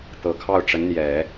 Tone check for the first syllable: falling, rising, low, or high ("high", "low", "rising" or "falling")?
low